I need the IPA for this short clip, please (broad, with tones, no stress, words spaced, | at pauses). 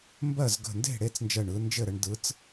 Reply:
mbɜ˥˨z ɡə̤˧˩nde̤˥˨ ɽe˥˨t͡snd͡ʒɜ˧˩ɳ ɯ˨˦nd͡ʒɘ˥˨ɾə˨˦ɳ dɯ˨˦t͡s